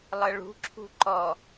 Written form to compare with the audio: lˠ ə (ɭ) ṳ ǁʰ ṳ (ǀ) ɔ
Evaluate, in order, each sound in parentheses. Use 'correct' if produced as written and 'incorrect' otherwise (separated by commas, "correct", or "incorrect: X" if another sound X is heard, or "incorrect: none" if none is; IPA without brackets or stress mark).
correct, incorrect: ǃ